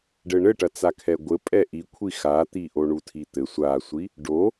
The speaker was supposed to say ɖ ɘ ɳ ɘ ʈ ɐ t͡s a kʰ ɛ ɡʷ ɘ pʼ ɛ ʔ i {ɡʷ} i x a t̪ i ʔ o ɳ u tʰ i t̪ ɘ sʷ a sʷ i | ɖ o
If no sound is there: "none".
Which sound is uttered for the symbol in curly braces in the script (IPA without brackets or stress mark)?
kʷʰ